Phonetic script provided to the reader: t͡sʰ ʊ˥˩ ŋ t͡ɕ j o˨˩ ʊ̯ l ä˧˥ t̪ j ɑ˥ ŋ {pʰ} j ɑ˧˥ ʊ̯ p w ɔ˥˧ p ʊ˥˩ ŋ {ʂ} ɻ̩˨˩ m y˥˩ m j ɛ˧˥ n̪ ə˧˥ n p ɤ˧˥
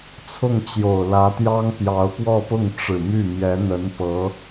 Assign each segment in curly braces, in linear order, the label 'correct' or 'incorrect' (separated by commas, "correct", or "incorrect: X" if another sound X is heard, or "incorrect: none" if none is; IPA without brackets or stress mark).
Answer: incorrect: p, incorrect: ʈ͡ʂ